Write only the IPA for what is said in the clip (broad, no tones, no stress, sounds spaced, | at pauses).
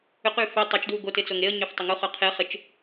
ʏ q y f ʏ tˤ œ t͡ʃ d w u ɡ o t ɪ t͡s o ŋ e ə̯ ɲ ø f tˤ ʏ ŋ u χ œ qʰ e χ ɪ t͡ʃ